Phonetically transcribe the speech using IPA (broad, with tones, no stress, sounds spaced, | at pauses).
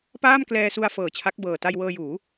p aː˥˩ m k l ɛː˧ s u˧ a̯ f ɤː˨˩ t͡ɕʰ a˦˥ k̚ b ɤː˨˩ t a˧ j w ɤː˧ j uː˩˦